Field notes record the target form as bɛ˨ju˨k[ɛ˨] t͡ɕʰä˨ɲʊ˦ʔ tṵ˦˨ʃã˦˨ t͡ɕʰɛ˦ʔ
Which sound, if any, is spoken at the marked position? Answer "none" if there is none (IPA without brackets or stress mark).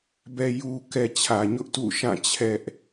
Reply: ɛ˨